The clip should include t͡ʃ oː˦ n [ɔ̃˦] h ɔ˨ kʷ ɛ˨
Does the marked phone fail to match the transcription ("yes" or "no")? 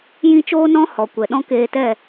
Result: no